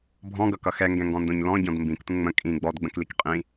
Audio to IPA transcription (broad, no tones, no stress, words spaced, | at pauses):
bʱɔ̃ɡʌkʌ xɛŋɡɛ̃ŋɡɔ̃ndõɲ lɔ̃ɟɔ̃d mbĩktʷə̃ ŋ͡mə̃ kʼĩ ɡ͡bɔdɡ͡bə̃klik qʼĩ